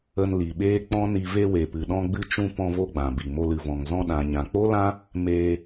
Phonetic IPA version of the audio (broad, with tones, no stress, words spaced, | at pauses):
ə˧nli˨ɓeː˦ k͡pɔ̃˦ni˧ ve˧we˨pɨ˨ɗɔ̃˧ ɡ͡bɨ˧t͡ʃũ˧ pɔ̃˧vo˧ ɡ͡bã˨bi˨mo˧l ɨ˨vɔ̃˨ŋ zɔ̃˧ɗã˨ɲã˨ k͡po˦lã˦ | meː˧